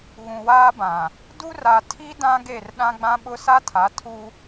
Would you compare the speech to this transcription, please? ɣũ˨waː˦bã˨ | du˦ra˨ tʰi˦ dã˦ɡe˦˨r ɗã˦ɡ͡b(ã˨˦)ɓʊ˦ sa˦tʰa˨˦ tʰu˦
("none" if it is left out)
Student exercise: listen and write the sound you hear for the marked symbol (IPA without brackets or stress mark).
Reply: ã˦